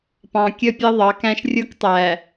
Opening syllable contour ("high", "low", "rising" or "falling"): low